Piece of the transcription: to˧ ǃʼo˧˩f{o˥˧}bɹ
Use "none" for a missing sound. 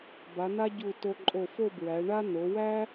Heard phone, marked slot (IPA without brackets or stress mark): o˥˧